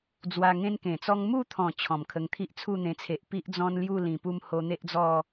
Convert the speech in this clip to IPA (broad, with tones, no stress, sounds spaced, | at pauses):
d͡z w a˧ ŋ ẽ˦ n k ẽ˨˩ t͡s ɔ˦ ŋ m u˥˧ t̪ʰ ɔ̃˨˩ t͡ɕʰ ɔ̃˨˩ m kʰ ə˧ ŋ t̪ʰ i˦ ʔ t͡sʰ u˥˧ n̪ ẽ˧ t͡sʰ e˨ ʔ p i˦ ʔ d͡z ɔ̃˦ n l j u˥˧ l ĩ˨˩ p u˥˧ m h o˧ n̪ e˦ ʔ d͡z ɔ˥˧